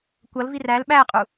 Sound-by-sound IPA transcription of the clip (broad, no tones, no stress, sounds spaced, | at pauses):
kʷ ʌ l v i r æ l ɓ æ qʼ u